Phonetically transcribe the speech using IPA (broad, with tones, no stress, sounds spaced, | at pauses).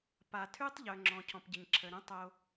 p a˩ tʰ ʉ˥ tˤ ʎ œ˩ ŋ͡ǁ ɔ̃˩ cʰ ɔ̃˩ p ɟ ə˩ ɲ ǁʰ ə˩ ɾ ũ˥ tˤ o˧